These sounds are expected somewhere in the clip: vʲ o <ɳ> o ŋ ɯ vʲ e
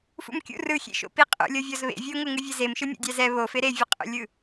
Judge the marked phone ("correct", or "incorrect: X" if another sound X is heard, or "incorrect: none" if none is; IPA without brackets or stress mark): incorrect: ŋ